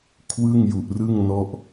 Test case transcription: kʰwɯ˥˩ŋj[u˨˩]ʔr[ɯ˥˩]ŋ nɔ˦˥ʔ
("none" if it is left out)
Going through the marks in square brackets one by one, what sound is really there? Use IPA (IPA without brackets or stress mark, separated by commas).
u˨˩, ɯ˥˩